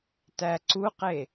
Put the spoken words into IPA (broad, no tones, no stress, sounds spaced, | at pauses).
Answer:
t æ ǀ u q e